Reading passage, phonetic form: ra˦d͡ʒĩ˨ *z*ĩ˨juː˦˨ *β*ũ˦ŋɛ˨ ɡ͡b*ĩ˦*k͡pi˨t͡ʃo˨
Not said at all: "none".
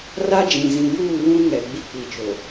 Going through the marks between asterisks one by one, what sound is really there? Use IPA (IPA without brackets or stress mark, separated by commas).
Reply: z, β, i˦